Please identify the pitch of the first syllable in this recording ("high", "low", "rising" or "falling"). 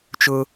high